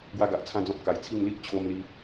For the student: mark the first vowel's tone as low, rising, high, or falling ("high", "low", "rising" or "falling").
high